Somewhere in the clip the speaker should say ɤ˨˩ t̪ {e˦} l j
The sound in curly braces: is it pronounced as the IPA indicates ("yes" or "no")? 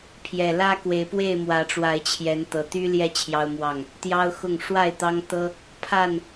no